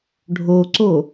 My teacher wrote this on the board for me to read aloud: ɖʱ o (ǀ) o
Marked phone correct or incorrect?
correct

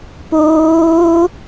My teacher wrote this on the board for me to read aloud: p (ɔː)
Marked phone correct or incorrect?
incorrect: oː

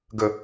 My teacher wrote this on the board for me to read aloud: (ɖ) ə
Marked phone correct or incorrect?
incorrect: ɡ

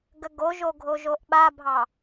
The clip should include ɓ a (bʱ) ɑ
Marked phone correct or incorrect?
correct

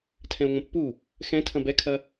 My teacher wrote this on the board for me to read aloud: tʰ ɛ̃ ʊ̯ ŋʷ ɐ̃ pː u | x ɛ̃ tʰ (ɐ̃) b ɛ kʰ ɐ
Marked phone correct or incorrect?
correct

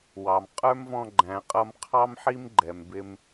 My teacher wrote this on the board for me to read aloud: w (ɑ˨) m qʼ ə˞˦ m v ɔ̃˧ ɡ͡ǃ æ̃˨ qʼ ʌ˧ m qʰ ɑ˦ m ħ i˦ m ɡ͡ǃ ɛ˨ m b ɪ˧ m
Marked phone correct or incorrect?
correct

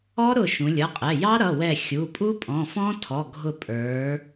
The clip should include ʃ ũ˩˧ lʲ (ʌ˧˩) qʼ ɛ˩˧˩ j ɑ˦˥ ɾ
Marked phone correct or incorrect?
incorrect: ʌ˩˧˩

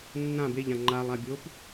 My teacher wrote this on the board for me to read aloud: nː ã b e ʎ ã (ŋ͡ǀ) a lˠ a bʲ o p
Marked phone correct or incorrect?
incorrect: ŋ͡ǃ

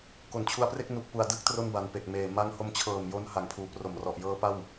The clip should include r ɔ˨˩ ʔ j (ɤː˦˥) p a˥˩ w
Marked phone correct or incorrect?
correct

